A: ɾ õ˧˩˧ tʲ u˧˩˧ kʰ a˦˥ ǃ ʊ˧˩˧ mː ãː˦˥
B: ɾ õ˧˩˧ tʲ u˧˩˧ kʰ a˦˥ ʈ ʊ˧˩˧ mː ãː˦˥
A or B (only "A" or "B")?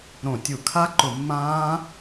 A